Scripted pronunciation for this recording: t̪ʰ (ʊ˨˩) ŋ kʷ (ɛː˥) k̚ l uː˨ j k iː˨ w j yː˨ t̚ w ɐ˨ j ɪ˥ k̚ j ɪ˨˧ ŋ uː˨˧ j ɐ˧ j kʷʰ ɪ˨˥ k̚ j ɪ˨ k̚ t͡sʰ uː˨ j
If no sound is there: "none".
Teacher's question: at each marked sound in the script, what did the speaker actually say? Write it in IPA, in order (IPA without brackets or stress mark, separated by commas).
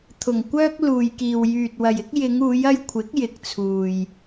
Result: ʊ˨˩, œː˥